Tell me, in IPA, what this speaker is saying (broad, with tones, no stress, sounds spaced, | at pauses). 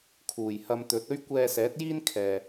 kʰ uː˨˩ j h ɐ˧ m t̪ ɵ˨˥ t̚ ɵ˥ ɥ kʷ ɛː˧ s ɛː˨˥ t̚ j iː˥ n kʰ ɛː˨